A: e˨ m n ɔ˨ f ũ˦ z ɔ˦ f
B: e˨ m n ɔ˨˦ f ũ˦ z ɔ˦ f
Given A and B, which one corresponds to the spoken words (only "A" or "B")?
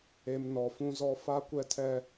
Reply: A